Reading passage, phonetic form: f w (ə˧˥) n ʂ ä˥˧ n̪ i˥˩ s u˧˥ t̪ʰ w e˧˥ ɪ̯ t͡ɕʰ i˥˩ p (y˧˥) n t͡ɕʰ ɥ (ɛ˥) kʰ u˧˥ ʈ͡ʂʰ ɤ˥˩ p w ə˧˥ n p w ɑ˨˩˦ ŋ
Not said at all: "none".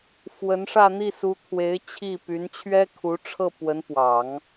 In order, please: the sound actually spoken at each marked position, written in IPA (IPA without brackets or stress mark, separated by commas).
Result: ə˧˥, y˧˥, ɛ˥